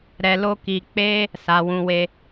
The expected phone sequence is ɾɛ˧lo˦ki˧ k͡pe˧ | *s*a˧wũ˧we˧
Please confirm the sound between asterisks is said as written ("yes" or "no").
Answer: yes